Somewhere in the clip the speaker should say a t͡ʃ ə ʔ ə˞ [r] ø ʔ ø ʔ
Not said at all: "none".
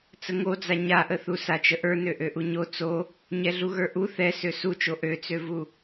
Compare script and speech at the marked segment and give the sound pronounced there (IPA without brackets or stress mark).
n